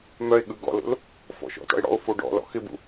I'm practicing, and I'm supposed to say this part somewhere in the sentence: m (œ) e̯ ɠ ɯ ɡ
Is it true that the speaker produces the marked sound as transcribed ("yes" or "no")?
yes